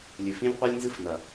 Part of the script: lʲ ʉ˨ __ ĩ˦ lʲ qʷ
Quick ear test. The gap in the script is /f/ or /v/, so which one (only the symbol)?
f